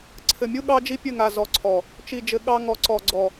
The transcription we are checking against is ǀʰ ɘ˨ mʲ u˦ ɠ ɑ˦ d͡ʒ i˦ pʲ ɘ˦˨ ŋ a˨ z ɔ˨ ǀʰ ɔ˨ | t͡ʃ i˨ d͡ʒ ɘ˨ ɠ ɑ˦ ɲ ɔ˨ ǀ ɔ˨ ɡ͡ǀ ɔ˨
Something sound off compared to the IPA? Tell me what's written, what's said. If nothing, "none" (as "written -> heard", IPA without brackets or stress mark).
ɲ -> ŋ